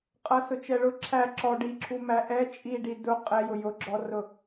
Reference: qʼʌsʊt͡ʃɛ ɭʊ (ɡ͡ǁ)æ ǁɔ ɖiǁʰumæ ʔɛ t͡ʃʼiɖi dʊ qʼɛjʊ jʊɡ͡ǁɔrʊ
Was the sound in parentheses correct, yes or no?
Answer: no